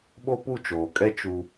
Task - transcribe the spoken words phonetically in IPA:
ɓo˦pu˦˨t͡ʃoː˨kʼɛ˦ t͡ʃu˦

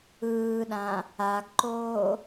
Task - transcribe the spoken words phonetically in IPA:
ɯːɗã | aɡǃoː

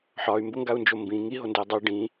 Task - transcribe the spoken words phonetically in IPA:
ħɒy̯mbʊŋɡau̯nd͡ʒo mbĩ ŋiɦondeu̯ dˤʉ ɖĩ

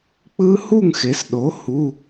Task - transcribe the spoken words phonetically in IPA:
k͡pɯ˦˥hu˥˨ŋxe˩˥sɗo˩˥ hu˩˧˩

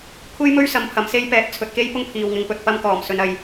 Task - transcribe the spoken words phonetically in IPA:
kʷʰe˥jmɵ˥ɥ sɐ˧mpʰɐ˨m se˧jpɛː˨˥t̚ t͡sʰɵ˨t̚ke˥j pʊ˥ŋpʰiː˨wŋɪ˨˧ŋ pɵ˨t̚pɐ˧mkɔː˨˩m sɵ˧nɐ˧j

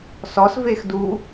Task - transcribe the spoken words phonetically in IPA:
sɔs vexdu

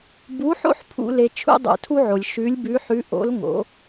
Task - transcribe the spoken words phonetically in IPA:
bu˧˥ħo̰˥ħpʰṵ˧ le˧t͡ʃʰṵ˥dˤo̰˧ tʰu˥ʕo˩lʲ ʃʉ˧˥lʲbʉ˧˥ħʉ˧˥ ʔo̰˧˥l ŋo̰˩˧

